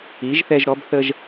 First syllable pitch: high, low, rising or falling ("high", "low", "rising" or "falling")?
rising